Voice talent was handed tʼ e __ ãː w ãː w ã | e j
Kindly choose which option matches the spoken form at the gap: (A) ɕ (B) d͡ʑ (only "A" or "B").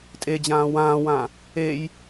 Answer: B